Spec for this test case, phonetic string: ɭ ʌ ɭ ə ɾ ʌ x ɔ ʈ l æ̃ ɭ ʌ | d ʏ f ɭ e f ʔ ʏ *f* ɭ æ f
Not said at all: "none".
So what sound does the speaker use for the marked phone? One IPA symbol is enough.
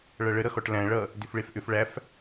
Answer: f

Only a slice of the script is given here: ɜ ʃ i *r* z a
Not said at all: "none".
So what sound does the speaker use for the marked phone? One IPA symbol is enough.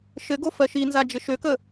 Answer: n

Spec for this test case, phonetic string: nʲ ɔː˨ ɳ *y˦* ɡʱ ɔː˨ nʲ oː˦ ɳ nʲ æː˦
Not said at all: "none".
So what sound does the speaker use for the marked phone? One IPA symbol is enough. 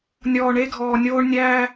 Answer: e˦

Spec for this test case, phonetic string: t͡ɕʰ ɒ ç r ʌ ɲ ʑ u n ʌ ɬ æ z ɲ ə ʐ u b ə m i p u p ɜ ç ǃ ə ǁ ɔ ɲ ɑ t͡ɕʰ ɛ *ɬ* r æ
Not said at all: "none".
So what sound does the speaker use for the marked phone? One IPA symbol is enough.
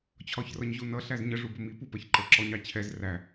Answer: z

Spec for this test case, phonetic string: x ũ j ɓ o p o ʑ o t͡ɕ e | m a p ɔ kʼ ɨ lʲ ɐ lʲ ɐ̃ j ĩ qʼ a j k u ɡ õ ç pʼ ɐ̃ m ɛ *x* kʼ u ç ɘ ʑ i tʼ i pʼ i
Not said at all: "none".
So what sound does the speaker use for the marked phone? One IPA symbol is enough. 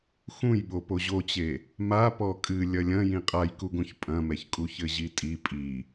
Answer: ç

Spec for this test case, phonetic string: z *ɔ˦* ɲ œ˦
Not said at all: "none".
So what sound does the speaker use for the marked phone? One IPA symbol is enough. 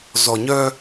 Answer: ɔ˨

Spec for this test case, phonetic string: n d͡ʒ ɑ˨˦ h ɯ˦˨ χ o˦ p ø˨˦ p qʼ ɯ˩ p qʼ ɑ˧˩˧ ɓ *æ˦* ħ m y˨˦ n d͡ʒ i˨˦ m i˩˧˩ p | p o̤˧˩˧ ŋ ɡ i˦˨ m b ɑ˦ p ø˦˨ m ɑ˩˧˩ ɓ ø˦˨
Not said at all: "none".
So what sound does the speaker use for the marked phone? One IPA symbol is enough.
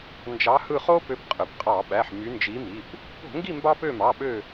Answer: æ˩˧˩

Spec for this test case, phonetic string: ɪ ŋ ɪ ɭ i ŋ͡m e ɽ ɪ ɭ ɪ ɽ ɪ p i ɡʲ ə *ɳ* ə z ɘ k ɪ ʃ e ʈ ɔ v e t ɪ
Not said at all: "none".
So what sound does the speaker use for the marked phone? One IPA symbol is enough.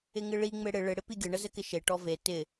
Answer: ɳ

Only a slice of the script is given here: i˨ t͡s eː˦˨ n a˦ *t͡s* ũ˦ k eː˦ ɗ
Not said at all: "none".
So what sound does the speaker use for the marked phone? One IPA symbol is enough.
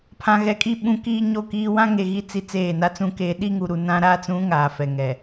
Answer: t͡s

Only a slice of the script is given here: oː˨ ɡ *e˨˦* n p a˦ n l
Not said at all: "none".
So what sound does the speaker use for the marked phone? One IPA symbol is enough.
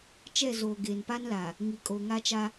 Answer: e˨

